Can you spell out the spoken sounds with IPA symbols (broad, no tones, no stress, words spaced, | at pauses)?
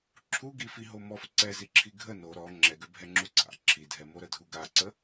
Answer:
ǁʰuɡi fiɦomɔf ǀɛziǁʰi ɡʱə no ɾɔ ŋ͡ǁɛɡøbʱɛŋ͡ǁu ǀa̰ ǁʰidʱɛmo ɾədʱuɡaǀə